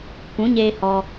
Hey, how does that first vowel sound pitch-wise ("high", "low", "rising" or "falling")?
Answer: rising